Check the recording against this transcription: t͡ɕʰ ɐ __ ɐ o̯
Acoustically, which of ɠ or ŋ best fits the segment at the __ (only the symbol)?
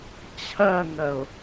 ŋ